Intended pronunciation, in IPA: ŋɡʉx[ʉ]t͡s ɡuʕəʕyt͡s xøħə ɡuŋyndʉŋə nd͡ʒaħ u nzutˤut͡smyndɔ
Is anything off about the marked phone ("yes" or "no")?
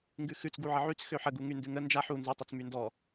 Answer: no